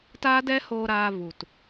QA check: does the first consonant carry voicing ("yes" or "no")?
no